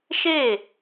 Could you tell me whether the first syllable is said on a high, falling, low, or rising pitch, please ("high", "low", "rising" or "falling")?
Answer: falling